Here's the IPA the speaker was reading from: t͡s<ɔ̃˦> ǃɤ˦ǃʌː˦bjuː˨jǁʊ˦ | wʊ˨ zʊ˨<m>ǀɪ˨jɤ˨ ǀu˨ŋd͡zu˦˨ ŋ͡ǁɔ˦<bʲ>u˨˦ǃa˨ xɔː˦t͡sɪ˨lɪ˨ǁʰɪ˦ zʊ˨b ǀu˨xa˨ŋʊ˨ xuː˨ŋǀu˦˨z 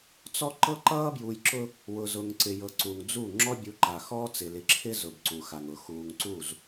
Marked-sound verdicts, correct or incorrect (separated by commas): incorrect, incorrect, correct